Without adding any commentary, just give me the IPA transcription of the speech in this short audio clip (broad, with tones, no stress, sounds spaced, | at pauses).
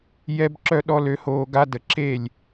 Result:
j ɛ˦ b ǁ œ˦ ɗ ɔ˦ l ø˧ h oː˧ ɡ a˦ d ə˧ ǁ e˦˨ lʲ